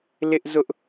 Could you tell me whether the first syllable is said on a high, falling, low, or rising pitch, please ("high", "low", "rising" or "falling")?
high